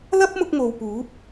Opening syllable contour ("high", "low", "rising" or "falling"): high